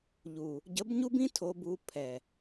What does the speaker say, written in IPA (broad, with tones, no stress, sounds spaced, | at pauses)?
ʎ u˨ | ɟ ə˨˦ b ɲ u˦ b ĩ˦ tʰ o˨ b u˨ pʰ ɛ˨